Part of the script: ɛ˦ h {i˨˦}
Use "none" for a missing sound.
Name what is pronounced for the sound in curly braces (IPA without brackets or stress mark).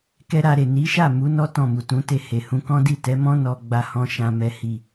i˦˨